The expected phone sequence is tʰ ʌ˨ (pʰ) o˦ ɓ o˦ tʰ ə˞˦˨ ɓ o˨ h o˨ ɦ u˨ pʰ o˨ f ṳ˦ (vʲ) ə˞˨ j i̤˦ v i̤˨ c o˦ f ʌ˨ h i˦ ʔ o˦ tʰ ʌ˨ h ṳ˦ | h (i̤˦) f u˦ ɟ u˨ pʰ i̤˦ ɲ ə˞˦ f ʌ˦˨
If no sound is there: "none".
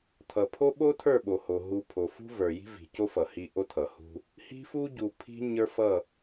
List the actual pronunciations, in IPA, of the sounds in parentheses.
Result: pʰ, v, i̤˦

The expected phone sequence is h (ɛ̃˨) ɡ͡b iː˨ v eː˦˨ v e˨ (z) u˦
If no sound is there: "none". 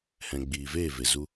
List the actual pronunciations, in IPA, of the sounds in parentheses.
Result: ɛ̃˨, z

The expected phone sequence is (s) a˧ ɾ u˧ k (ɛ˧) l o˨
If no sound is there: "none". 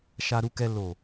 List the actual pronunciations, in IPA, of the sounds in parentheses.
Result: ʃ, ɛ˧

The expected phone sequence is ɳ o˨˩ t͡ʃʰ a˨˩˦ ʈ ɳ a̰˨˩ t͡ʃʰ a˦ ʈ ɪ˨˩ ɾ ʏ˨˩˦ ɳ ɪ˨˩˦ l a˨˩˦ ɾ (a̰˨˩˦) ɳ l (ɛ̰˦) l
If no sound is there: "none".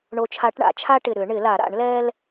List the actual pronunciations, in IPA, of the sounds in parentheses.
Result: a̰˨˩˦, ɛ˦

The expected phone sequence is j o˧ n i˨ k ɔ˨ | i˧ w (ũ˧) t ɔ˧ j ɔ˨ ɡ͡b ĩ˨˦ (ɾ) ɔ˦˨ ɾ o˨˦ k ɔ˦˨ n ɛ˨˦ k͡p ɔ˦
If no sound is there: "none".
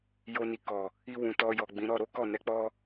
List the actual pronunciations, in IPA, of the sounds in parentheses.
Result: ũ˨, ɾ

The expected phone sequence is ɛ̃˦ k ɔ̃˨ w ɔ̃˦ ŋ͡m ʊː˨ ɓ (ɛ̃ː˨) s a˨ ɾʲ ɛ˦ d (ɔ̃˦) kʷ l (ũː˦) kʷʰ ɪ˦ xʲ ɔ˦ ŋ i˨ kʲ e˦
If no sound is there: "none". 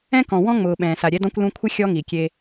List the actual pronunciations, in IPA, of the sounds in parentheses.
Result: ɛ̃ː˨, ɔ̃˦, ũ˦

